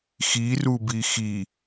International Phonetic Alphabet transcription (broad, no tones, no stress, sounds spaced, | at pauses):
x i r u b i x i